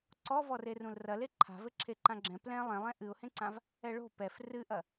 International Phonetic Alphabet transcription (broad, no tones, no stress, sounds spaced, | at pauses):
ǀ ɔ v ɔ r e r ũ l r ɐ l e ǃʰ a̤ v ɘ ǁʰ e ǃ ã ɡ͡ǁ ɛ̃ p l ɛ̃ lˠ ẽ lˠ ɛ̃ ʔ ɨ ʊ̯ h ẽ ǀ ã v | ɛ ɭ o̤ p ɛ f r ɨ ʔ ɐ